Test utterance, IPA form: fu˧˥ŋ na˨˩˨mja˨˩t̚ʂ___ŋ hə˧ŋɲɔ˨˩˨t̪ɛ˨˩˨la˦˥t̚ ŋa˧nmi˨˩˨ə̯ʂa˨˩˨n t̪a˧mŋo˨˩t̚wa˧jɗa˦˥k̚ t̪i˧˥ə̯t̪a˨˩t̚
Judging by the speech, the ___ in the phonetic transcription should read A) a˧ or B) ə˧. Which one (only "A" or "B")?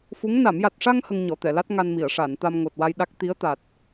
A